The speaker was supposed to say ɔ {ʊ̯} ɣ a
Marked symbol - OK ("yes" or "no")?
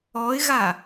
no